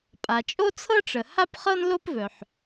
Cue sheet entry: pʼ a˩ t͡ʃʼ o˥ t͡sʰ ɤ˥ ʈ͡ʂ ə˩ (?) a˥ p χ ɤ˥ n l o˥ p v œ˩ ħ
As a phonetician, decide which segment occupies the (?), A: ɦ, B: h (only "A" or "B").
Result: B